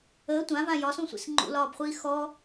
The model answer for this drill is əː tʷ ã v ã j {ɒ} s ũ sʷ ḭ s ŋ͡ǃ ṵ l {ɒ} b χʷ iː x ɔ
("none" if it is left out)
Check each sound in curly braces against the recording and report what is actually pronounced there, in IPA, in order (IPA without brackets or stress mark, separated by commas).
ɒ, ɒː